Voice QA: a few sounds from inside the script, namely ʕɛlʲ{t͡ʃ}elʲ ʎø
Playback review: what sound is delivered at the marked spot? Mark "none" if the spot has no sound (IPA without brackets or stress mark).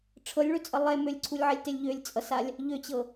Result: t